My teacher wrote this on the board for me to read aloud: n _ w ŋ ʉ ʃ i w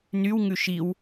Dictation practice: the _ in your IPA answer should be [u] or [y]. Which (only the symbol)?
y